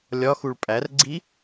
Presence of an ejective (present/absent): present